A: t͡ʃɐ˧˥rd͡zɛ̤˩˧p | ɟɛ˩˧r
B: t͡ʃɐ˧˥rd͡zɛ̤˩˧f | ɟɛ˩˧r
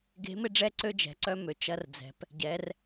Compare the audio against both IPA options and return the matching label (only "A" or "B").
A